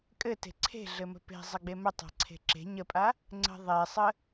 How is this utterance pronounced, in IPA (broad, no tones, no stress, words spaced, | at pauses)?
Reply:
kʼɘte̤ ǀʰe̤ɮɘ mə̤pe̤ zˤɘɡ͡bemə tˤa̤ǀʰe̤ǁe̤ ɲəpʼa | ŋ͡ǀə̤ ðˤesˤə